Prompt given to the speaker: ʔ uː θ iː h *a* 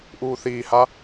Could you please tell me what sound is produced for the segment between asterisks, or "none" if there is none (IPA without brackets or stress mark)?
a